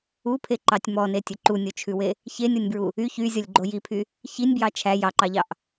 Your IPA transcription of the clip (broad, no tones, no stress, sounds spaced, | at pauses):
u pʰ e ǃ ɑ tʲ m ɔ n e tʲ ɵ ǃ u nʲ o t͡ʃʰ ʉ w e | ç e nʲ ɔ nʲ b ɹ u | y ç y zʲ ɔ lʲ ɡ͡ǃ o j i pʰ y | ç i nʲ b j ɑ t͡ʃʰ æ j ɑ ǃ ɑ ʎ ɑ ʔ